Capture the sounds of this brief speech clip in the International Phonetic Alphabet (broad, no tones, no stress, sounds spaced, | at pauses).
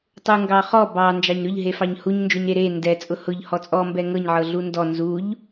tˤ u ŋ ɡ ɑ χ ɔ b ɑ n d͡ʒ ɑ ɲ ɾ ʊ ʎ ɦ e f ɑ ɲ h u ɲ n d͡ʒ o ɲ ɾ e ɾ e n d ɛ t͡sʼ ʊ h ʊ ʎ h ɔ t͡sʼ ɔ m b ɛ ŋ ɤ ɲ ʕ ɤ ɮ u n d ɔ n z u ʎ